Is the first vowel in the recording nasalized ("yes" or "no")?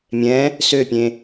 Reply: yes